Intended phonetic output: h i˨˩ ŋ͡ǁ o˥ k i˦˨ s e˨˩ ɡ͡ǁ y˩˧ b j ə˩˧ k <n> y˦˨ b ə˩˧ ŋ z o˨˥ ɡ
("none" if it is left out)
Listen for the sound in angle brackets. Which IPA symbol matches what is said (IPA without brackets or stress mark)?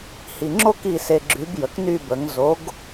n